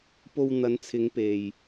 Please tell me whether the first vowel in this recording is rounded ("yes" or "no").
yes